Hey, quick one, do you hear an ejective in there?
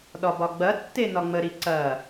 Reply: no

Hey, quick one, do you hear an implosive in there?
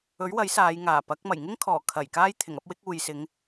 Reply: no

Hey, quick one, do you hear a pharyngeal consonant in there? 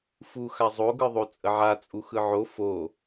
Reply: yes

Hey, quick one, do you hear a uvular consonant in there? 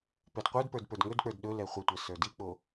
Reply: yes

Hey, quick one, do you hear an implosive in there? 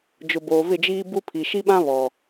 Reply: yes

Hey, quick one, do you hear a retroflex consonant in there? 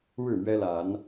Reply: yes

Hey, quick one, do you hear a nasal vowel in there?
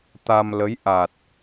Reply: no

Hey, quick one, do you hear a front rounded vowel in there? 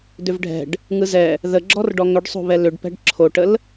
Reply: yes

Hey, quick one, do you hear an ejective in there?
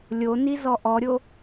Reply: no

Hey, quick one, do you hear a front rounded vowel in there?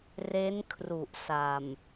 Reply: no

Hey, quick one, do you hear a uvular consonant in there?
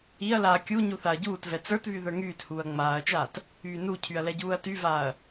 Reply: no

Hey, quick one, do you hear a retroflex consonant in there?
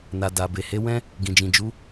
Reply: no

